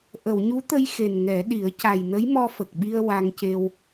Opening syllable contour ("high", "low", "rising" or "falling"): low